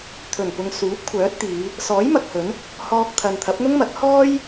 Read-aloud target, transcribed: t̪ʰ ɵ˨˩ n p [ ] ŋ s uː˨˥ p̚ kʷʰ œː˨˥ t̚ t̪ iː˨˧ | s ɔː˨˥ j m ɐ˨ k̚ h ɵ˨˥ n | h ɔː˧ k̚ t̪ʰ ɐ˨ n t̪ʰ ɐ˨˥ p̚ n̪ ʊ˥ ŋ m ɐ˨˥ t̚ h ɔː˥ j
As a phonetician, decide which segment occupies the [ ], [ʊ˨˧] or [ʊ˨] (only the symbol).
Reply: ʊ˨